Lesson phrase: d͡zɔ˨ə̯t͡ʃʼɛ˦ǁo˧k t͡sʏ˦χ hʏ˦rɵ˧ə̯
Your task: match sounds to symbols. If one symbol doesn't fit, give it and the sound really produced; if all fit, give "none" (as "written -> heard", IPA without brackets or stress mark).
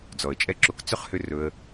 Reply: none